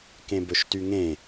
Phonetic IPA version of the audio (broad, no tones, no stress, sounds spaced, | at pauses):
k ẽ b ɵ ʃ t y ŋ ẽ